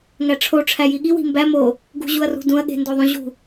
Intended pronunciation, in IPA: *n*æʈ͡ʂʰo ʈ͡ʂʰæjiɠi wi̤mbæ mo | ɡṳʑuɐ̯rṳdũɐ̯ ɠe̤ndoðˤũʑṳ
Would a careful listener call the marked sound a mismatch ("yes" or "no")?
yes